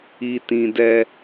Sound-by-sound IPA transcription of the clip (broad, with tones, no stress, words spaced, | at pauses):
i˨tĩ˨ dɛ˦